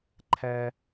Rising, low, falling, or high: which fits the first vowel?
high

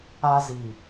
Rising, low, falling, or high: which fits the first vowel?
high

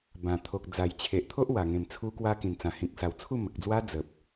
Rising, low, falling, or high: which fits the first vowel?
low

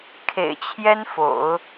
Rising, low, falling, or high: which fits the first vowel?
low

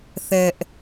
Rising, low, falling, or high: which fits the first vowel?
high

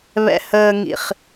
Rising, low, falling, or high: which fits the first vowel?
low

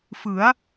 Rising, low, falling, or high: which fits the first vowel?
rising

